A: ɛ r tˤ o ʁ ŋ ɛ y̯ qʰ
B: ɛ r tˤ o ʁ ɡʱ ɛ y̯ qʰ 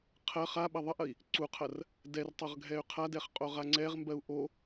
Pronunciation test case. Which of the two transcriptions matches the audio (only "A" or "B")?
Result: B